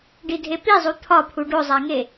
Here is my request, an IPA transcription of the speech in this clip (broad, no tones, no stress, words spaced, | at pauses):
ɖidʱepizˤu t̪ʰɒpʰu ɖozˤæŋe